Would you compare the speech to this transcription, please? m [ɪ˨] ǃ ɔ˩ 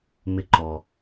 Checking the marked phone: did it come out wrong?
no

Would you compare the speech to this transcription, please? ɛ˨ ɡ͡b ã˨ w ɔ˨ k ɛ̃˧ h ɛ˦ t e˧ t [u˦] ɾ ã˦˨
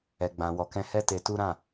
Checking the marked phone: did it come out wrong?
no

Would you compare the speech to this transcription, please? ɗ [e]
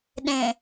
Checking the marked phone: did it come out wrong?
yes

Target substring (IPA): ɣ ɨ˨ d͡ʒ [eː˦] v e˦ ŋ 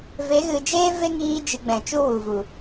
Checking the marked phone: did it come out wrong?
no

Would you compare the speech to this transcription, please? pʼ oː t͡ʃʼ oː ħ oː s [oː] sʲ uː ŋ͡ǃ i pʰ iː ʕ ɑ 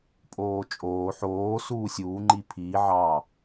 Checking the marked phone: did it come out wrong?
yes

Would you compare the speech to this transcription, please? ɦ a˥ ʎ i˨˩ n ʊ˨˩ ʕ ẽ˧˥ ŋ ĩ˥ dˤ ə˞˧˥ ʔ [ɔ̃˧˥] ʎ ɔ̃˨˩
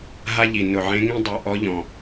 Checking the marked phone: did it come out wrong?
yes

